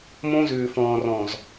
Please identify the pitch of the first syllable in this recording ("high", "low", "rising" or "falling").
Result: high